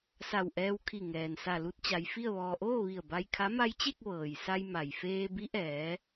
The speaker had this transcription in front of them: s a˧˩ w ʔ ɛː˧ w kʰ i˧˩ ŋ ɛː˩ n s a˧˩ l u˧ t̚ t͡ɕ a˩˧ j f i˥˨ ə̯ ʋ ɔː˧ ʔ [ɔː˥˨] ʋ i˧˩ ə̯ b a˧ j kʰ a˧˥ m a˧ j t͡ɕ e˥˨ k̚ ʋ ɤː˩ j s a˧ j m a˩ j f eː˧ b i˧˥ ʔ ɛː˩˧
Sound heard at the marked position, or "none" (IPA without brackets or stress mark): oː˥˨